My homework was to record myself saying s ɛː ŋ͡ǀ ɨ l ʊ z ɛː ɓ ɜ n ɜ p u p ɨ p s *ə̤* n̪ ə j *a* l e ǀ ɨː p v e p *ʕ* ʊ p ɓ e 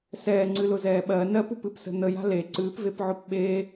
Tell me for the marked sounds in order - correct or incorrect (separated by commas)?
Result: correct, incorrect, correct